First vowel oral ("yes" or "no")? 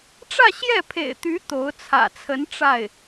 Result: yes